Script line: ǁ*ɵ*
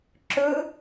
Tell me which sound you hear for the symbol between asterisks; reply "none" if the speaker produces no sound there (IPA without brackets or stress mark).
ɵ